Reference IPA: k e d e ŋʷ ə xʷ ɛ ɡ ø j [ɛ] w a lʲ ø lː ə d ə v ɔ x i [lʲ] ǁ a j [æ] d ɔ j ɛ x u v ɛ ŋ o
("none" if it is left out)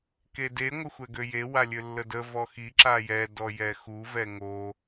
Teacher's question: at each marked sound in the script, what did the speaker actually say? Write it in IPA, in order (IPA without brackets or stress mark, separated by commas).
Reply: e, none, ɛ